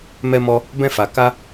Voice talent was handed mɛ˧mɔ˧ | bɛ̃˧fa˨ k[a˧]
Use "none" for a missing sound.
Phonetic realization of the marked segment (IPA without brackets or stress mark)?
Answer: a˧